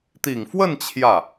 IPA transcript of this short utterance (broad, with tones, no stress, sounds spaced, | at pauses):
t̪ i˨˩ ŋ f w ə˥˧ n t͡ɕʰ j ä˥˩